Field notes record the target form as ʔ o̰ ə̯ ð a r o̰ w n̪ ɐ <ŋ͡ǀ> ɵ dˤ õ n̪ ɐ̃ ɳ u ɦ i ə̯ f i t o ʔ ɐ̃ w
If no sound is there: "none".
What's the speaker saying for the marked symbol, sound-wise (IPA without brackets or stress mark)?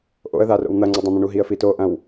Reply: ŋ͡ǀ